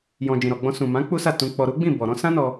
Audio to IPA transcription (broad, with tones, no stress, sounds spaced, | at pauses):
j ɔ̃˨ d͡ʒ ĩ˨ ɾ ɔ˨ ɡ͡b ɔ̃˧ s ũ˨ m ã˨˦ k͡p u˦ s a˦˨ t ũ˧ k͡p ɔ˧ ɾ u˦ ɡ͡b ĩ˦˨ b ɔ˨ ɾ ɔ̃˨˦ s ã˦ n ɔ˧